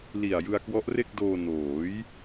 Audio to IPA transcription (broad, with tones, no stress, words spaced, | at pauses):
li˨˩a̯ jɯ˧a̯kwɔ˦˥ʔre˥˩k̚doː˧ noː˩˦j